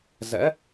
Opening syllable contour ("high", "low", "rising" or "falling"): rising